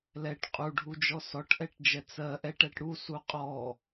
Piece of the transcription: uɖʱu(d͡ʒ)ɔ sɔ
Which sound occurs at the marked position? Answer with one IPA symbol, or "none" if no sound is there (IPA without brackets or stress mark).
d͡ʒ